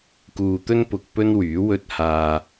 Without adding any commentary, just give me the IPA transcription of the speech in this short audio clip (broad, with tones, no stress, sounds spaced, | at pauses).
k uː˨ t̪ ɵ˧ n p ʊ˨ k̚ p ɵ˥ n w yː˨˥ w ɵ˥ t̚ h aː˧